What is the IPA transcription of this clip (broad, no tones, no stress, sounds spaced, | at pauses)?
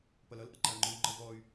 p ʌ l ʌ l ʔ ʌ ǃ a y̯ ŋ͡ǃ ɯ u̯ ŋ͡ǃ ʌ v ɔ y̯